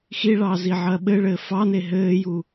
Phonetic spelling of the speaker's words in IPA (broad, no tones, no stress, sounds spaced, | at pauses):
x i ɭ ɑː z i ʕ ɐː ɓ ɘ ɭ ɘː f ɑ n e ɦ ɘː j u